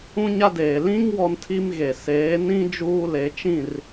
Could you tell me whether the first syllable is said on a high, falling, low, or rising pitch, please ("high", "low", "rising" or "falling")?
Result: high